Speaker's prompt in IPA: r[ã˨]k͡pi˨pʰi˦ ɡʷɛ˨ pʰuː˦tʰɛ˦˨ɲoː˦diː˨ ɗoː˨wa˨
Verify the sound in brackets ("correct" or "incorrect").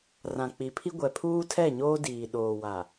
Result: correct